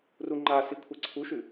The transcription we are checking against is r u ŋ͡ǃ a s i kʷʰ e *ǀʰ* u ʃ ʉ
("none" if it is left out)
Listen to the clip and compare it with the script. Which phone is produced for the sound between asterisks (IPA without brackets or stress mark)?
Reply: ǀʰ